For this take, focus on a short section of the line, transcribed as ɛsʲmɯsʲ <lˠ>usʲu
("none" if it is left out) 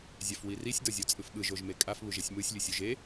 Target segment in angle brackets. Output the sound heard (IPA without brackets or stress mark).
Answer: lʲ